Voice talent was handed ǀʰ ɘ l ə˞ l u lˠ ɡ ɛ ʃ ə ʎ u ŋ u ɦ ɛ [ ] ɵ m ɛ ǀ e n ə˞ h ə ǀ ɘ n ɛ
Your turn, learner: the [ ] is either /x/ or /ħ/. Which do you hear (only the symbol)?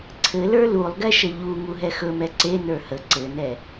x